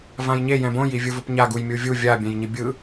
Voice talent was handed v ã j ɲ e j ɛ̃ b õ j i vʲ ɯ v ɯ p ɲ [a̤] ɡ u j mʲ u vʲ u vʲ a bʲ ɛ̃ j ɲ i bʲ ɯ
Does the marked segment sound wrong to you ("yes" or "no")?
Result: yes